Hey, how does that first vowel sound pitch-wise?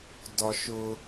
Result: high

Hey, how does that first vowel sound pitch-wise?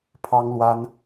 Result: high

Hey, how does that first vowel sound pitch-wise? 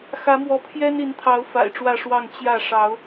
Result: rising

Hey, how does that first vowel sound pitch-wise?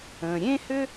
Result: low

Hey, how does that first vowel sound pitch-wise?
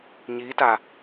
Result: rising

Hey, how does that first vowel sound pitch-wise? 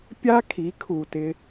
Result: high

